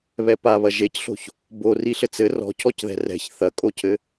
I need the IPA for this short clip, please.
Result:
β ɛ p a β ɐ ʒ e c ɬ o̤ ç | b o r i ɬ ɘ t͡s ɘ r ɔ̤ cʰ ɔ c ð ɛ̤ r ɛ̤ ç θ ɐ kʼ o cʰ ɘ

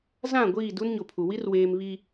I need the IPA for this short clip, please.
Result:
z ã˦˨ ɡʷ iː˦˨ d u˦ n ɲ o˨ pʰ u˨ w i˦ r w eː˨ m β i˨

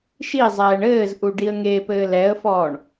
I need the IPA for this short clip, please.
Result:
ʃ i zˤ ɛː ɳ ɘː z ʔ u ɖ i ə̯ ŋ e p ɘː l ɛ ə̯ f ɔː ɳ

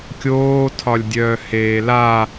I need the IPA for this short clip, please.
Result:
kʲ oː tʰ ɒ lʲ dʲ œː h eː l a

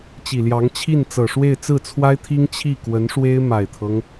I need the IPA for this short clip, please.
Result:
t͡ɕ i˨˩ l j ɑ˧˥ ŋ t͡ɕʰ i˥˩ n t͡s ɤ˨˩ ʂ w e˥˧ ɪ̯ t͡s ɹ̩˥˩ t͡sʰ w a˥ ɪ̯ t̪ʰ i˥ ŋ t͡ɕʰ i˥˩ k w ə˧˥ n ʂ w e˥ ɪ̯ m a˨˩ ɪ̯ t̪ʰ ɤ˦ ŋ

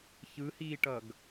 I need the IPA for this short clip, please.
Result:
ç ɯ h iː ʈ ʌ ɡ

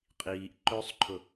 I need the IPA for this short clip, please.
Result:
qʼ iː ʔ ǃ ɵ sˤ ǃʰ ʊ

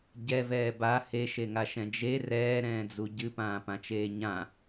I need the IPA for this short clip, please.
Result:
ɟ ɛ v ɛː b a h e ʃ e ŋ a ʃ ɛ̃ d͡ʒ e r ɛː ɾ ɛ̃ː d͡z u ɟ ɨ p ãː p ã t͡ʃ eː ɲ ã

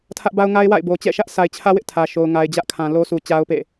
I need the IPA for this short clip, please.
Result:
tʰ ä˦ ʔ b a˦ ʊ̯ ŋ a˦ ɪ̯ w a̰˦˨ ɪ̯ b o˨ t͡ɕ ɛ̰˦˨ ʃ ä˦ ʔ s a˨ ɪ̯ t͡ɕʰ ä˦ w ɪ˦ ʔ tʰ ä˨ ʃ o˨ ʊ̯ ŋ a˨ ɪ̯ d͡ʑ ä˦ ʔ kʰ ã˨ l o˦ s u˨ t͡ɕ a˦ ʊ̯ p ḛ˦˨

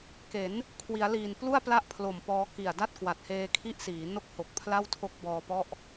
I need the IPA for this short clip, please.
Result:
k e˩˦ n | kʰ w i˩˦ a̯ l iː˨˩ n p l u˥˩ a̯ p l a˥˩ ʔ pʰ l o˨˩ m p ɔː˧ k i˨˩ a̯ d a˥˩ t̚ k w a˨˩ t̚ h eː˧ kʰ i˥˩ ʔ s iː˩˦ n o˥˩ k̚ h o˨˩ k̚ pʰ l a˥˩ w tʰ o˦˥ k̚ b ɔː˧ p ɔ˥˩ ʔ

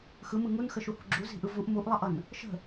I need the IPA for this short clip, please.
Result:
x ɯ m ɯ ŋ u n x ə ʃ u h ṳ ɡ͡ǁ u z i̤ ʔ ɯ v u ʔ m u ʔ lˠ ʌ ʔ ʌ n | ʃ ə̤

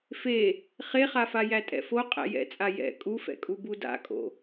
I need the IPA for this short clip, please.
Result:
f e | χ e χ a f a j æ tʼ ɛ̰ f o qʼ æ̰ j ɛ̰ t͡sʼ a j ɛ̰ kʼ u f ɛ̰ kʼ u b u d a̰ kʼ o̰

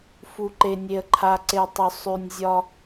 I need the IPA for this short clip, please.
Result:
f u˨ ǃ e˨ nʲ e˨ ə̯ ǃʰ a˨ ǀ e˨ tˤ ʏ˨ sˤ ʉ˨ nʲ zʲ ɒ˦

